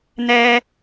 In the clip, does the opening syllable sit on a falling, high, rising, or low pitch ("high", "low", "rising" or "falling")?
high